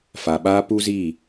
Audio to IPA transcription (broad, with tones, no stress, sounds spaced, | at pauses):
f a˨ ɓ aː˦ p u˦ z i˦˨